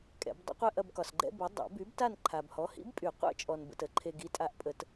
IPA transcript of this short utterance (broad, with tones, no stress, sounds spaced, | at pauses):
kʼ ɛ̰˨˩˦ b dˤ ə̰˥ qʷ ɛ˥˧ ʔ ɐ˥˧ b k ɒ˨ s ɡ͡ǃ ɛ̰˥ b ə˨˥ dˤ a̰˨˩˦ b y˨˥ b t a˥˧ n ǃʰ a˨ b h ɔ˨˥ h ḭ˨˥ b pʼ y˨˩˦ qʷ ɛ̰˥ t͡ʃʼ ɔ˨ n b ə̰˨ t ə˨˩˦ ǃʰ e˨ ɡ i˨˥ tʼ a˨˥ ʔ pʼ ə˨˩˦ t